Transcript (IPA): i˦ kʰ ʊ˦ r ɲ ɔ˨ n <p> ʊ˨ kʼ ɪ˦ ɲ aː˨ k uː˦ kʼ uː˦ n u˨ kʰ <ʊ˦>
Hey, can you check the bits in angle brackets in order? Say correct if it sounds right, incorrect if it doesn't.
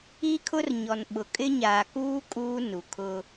incorrect: ɓ, correct

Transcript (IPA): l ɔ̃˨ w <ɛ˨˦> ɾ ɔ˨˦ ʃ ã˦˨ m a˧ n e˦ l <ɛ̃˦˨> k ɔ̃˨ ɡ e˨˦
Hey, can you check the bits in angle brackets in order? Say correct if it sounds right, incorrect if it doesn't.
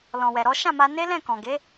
incorrect: ɛ˨, correct

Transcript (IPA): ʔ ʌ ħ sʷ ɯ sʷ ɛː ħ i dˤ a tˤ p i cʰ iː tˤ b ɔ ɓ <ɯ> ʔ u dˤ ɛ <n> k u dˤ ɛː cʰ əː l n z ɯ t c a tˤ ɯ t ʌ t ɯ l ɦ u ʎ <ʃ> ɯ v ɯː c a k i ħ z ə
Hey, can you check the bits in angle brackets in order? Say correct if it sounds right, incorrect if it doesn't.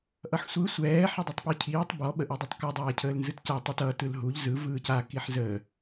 incorrect: ə, incorrect: tˤ, incorrect: z

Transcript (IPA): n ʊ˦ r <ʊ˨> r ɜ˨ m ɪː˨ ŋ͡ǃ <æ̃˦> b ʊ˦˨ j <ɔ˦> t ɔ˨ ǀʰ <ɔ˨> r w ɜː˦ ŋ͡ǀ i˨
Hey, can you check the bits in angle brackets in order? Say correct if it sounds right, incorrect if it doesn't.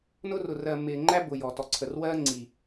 correct, incorrect: æ˦, incorrect: ɔ˨, incorrect: ə˨

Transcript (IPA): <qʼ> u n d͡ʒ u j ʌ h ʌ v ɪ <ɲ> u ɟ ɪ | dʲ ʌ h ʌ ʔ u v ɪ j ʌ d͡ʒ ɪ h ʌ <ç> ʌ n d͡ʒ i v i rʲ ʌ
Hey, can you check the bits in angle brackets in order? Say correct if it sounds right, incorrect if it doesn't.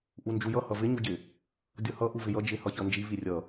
incorrect: ʔ, correct, correct

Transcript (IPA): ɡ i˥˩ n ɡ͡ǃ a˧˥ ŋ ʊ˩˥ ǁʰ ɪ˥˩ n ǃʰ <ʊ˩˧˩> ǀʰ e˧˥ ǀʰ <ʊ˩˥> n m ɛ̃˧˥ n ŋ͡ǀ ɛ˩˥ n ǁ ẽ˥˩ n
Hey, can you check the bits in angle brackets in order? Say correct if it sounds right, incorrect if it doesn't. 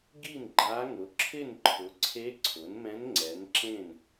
incorrect: ʊ˩˥, correct

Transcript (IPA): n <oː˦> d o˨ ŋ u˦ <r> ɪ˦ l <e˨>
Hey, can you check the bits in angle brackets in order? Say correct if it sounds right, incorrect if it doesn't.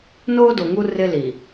correct, correct, incorrect: i˨

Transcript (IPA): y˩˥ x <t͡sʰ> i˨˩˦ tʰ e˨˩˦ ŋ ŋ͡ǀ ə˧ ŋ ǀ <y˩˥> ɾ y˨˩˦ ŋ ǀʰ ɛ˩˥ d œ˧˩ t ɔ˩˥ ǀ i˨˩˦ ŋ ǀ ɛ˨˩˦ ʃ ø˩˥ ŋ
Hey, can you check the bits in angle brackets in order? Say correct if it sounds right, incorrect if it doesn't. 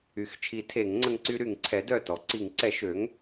incorrect: t͡ʃʰ, incorrect: y˧

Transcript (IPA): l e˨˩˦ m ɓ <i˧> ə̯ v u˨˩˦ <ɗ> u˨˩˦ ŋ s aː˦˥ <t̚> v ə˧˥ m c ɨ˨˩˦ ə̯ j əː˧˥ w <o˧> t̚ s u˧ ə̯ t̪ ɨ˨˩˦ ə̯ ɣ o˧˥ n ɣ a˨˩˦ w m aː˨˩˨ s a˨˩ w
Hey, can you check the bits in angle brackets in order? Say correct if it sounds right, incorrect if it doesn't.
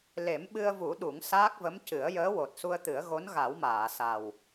incorrect: ɨ˧, correct, incorrect: k̚, incorrect: o˨˩

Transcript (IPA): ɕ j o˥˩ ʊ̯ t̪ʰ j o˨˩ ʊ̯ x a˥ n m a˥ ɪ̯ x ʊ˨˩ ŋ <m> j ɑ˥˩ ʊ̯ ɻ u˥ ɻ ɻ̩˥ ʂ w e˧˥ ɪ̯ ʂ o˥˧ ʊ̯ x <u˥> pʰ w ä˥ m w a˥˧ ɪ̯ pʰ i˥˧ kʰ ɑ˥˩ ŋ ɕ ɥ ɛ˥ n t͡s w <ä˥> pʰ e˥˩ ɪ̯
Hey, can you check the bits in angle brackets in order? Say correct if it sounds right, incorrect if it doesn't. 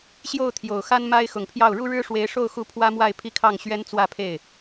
incorrect: pʰ, incorrect: u˥˩, incorrect: ä˥˧

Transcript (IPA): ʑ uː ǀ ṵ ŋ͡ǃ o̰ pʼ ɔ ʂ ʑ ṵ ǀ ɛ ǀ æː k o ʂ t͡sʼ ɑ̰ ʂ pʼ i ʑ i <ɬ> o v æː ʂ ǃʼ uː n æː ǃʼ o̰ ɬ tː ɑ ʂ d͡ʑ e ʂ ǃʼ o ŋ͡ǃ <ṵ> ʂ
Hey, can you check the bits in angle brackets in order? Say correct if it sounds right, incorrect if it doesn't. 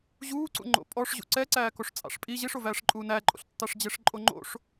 incorrect: ʂ, incorrect: o̰

